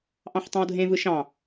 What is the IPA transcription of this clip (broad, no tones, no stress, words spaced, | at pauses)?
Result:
ʔɑ̃ħtˤɑ̃wdʱẽvɯ ʃɑ̃